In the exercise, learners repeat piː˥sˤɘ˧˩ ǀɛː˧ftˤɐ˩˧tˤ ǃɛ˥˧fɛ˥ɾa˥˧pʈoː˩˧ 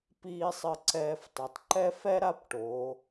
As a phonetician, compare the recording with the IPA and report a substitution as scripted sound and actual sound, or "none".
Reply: iː˥ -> iː˧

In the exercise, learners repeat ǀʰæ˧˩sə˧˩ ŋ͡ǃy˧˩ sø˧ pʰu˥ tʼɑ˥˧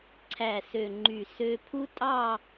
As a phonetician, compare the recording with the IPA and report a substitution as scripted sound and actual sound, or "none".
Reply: ə˧˩ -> ø˧˩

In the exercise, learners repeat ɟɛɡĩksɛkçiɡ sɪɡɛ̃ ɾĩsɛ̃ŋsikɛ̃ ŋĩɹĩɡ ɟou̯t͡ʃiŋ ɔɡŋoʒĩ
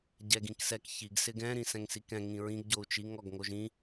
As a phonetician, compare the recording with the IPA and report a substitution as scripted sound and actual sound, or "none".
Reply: none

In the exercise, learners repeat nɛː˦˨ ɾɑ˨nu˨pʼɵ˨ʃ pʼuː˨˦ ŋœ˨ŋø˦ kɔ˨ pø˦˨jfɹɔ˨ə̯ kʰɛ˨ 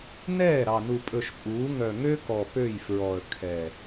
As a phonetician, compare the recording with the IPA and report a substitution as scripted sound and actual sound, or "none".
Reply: none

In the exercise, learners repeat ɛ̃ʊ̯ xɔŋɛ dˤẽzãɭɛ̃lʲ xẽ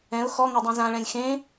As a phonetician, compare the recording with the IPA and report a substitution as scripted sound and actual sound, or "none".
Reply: none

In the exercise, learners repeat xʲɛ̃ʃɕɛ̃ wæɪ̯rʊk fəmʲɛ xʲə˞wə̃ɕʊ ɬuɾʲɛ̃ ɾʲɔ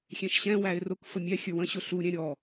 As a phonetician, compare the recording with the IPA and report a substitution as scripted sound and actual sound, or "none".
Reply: none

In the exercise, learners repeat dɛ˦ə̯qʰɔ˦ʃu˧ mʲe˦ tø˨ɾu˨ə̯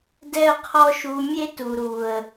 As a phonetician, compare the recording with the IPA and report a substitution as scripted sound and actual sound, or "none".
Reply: ø˨ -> u˨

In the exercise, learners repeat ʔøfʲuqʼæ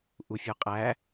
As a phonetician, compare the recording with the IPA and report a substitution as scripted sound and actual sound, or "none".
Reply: ø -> u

